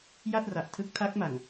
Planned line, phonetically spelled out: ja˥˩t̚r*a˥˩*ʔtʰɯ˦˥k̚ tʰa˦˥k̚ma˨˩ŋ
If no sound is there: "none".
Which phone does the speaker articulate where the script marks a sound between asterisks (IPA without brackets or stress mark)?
a˨˩